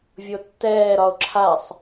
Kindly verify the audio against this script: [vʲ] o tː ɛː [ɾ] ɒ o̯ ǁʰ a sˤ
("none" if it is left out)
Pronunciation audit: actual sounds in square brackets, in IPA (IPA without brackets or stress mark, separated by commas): vʲ, ɾ